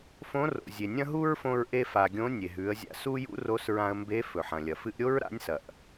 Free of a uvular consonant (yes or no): yes